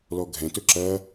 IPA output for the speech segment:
lɔɡʱɛ̃tɵ ǁɐ

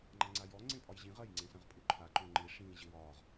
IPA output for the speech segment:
ŋ͡ǃaŋ͡ǀajɔ ŋ͡ǀẽpʼɒjʑĩʁ ɐj ŋ͡ǀẽsɐ̃ʁpʼuǃʰa ǃõŋ͡ǃi ʂĩ ʑɪwɒːʁ

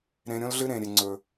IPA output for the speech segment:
ɾẽ˨ɾʲõ˦lɮɨ˦ ɾẽ˨ɾʲe˨ ŋ͡ǀɵ˨

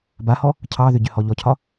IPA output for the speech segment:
bahɔ | cʰɑðʏ ɟʏhɔʎɔcʰɒ

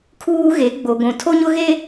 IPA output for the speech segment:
kʰuː˦ɣe˨˦ɡ͡bo˨ɡʷũ˨ tʰo˦ɲʊ˦ɣe˦

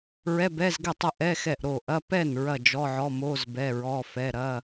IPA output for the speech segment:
ɹɛ˧˥˧bɛ˧˥˧zɡɛ˥˩tˤɐ˥˩ ʔɛ˧˥˧ xɛ˥˩ʔɾo˥˩ ʔɐ˧˥˧ pɛ˥˩n ɹɐ˥˩d͡ʒɔ˧˥˧ʕɔ˧˥˧mo˧˥˧z bɛ˧˥˧ɹɔ˧˥˧ fɛ˧˥˧ ɾɐ˧˥˧

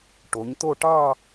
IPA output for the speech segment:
ʈo˩˧ɲt̪o˥˧ ʈɑ˥˧

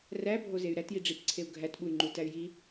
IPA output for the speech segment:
ræbʱozey̯ ɾætjiɖ͡ʐipǀʰeu̯ ɡʱætɓuy̯ŋ͡ǃutæy̯ ji

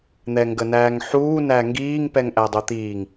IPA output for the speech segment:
n̪ɛŋɡənæːŋħuː næŋɡiːŋ pɛŋʔædˤot̪iːŋ

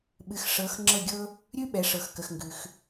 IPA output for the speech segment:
ɓɨ˨x ʂɤ˨˦x ŋ͡ǁɤ˥˨ɡʲɤ˥ | ɾʲʉ˥ ɓɛ˨˦ʂɤ˨xkə˨xŋɡʉ˨x

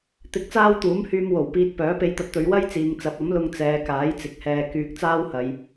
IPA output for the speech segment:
t̪ɪ˧k̚t͡saː˥wt̪uː˨˥mhyː˧m wo˨˩w piː˧t̚ pœː˨˥pe˧jt̪ɐ˧t̚t̪ɵ˨˧ɥ wɐ˥jt͡siː˨ŋt͡sɐ˨˥p̚ ɐ˨˥mlʊ˧ŋ t͡sɛː˨˧kaː˨˥jt͡sɪ˨k̚hɛː˧ kyː˧k̚t͡saː˥whɐ˨˧j

